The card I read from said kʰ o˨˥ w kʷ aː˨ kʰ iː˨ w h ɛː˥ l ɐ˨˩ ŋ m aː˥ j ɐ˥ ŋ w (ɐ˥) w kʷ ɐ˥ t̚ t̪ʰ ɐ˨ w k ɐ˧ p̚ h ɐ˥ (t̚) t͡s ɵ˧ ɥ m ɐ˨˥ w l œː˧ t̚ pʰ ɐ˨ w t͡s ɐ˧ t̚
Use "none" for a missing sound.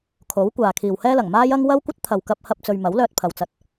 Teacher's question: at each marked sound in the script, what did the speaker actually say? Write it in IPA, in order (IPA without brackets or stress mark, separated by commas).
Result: ɐ˥, p̚